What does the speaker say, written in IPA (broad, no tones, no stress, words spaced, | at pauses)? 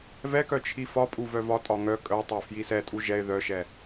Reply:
vɛkœ t͡ʃʰifɒpʼu vœvɒtʼɒ ŋœ kʼœtˤɛ fjisɛtʼu ʒɛɪ̯ ðœʃɛ